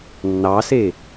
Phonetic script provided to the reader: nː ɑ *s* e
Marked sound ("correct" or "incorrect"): correct